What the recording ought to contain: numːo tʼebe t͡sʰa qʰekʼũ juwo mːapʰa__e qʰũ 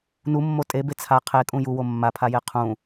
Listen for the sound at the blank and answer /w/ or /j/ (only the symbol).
j